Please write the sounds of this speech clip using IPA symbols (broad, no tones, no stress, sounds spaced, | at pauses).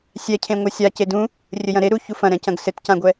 sʲ ɛ cʰ ẽ ŋʷ ɛ sʲ a c e d ũ | rʲ ɘ j ɐ̃ ɾ e ɾ u ç u f ɐ̃ ɾ ɛ̃ c ɐ̃ ɡ s ɘ t c ã ɡʷ ɛ